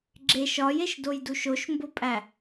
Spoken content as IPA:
ɡ͡ǁ e ʃ ɒ j e ʃ d o j d u ʃ o ʃ m b o pʼ æ

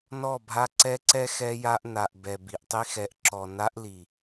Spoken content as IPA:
n ɔ˦˨ bʱ a˦ ǀ ɛ˦ ǀ ɛ˦ x ɛ˦ j a˦ ʔ n a˨ ʔ b ɛ˨ b i˨ ʔ tˤ i˦ x ɛ˨ ʔ ǁ ɔ˨ n a˦ ʔ l i˨

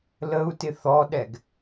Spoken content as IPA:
l ə u̯ t ɪ θ ɔ ɗ ɛ ɡ

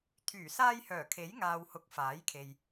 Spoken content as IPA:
t̪ʰ yː˨˩ s aː˧ j h œː˨˩ kʰ e˨˥ j ŋ aː˨ w h ʊ˨˥ k̚ f aː˨˥ j kʰ e˨ j

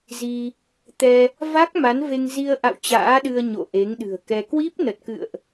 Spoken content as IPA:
z i˧ | t̪ ɛ˧ | v a˦˥ k̚ m a˨˦ n v e˧ ŋ z i˧ ə̯ ʔ a̰˧˨ w t͡ɕ a̰ː˧˥ ɗ ɨ˧ ə̯ ɲ o̰˧˨ ʔ e˨˦ ŋ ɗ ɨ̤˨˩ ə̯ k ɛ˧ k w i˦˥ p̚ n ə˨˩ t̚ k ɨ̰˧˨ ə̯ ʔ

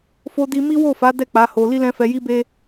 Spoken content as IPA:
f o˧ d i˧ m i˦ w o˦˨ f a˨˦ d ɛ˦˨ k͡p a˨˦ h o˧ l i˦ l ɛ̃˦ f ɛ˧ j i˦ b e˦

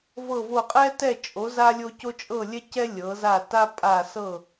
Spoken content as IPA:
v ɤ˦˨ v o˦˨ qʼ ɛ˦ t ɛ˦˨ t͡ʃʼ o˨˦ z a˦ lʲ o˦ c o˦ t͡ʃʼ ɤ˦˨ lʲ ɛ˦ c ɛ˦ lʲ ɤ˨˦ z a˦˨ t a˦ pʼ a˦˨ s ɤ˦˨

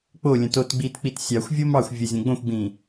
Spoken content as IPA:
k͡p o lʲ ə̃ t o t ɡ͡b i t k͡p i t sʲ ɑ xʷ vʲ o m ɑ xʷ vʲ ə zʲ õ ɡ͡b õ xʷ ɡ͡b ĩ

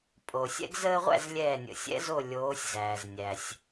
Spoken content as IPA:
pʼ o˩ sʲ ɛ̰˦ ɡ z əː˦ ʁʷ æ̰˥˨ z lʲ ɛː˧˩ nʲ ə̰˩ sʲ ɛ̰˨˦ z o˧˩ lʲ oː˨˦ sʲ z æː˩ z nʲ æ˩ sʲ

